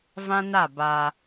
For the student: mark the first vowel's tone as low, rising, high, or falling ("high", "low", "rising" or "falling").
high